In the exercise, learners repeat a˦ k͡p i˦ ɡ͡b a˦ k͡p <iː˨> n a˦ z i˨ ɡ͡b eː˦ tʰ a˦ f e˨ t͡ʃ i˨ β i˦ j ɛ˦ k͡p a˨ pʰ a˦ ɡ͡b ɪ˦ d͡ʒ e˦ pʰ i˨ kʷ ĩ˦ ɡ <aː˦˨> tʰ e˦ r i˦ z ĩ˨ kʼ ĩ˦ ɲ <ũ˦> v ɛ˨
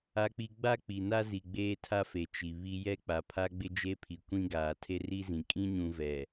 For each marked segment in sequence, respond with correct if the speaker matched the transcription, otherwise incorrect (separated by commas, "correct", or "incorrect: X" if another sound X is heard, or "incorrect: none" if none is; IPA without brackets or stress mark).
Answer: incorrect: i˨, incorrect: aː˨, incorrect: ũ˨